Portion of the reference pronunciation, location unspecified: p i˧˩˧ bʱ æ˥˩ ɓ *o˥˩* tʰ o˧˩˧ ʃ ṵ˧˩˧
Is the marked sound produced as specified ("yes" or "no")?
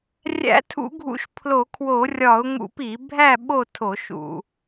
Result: yes